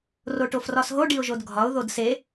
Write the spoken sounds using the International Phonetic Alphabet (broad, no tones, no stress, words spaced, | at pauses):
roʈofrɒsɦo ɖiʊ̯ʒodɡʱɒʊ̯ ðodse